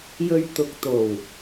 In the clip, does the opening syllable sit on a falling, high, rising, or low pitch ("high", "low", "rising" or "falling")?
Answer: low